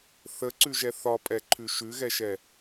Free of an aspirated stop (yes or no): no